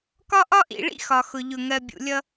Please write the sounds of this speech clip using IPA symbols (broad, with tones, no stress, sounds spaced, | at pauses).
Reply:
k ɒ˦ ʔ ɒ˦ ʔ ḭ˨ ɭ ḭ˦ x ɒ˨ x ʊ˨ ʎ ʊ˨ ŋ ɜ˨ bʲ ṵ˨ lʲ ʌ˦